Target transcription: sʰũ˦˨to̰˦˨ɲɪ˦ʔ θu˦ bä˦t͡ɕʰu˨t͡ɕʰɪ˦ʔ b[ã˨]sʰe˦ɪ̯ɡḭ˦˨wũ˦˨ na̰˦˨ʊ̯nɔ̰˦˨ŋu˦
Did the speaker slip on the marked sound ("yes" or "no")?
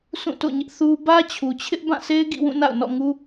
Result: yes